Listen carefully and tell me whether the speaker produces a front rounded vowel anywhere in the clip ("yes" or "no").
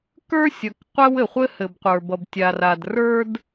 no